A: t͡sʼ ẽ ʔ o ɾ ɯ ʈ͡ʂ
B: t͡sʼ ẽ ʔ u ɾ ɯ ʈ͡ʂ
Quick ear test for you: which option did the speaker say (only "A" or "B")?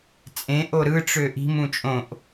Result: A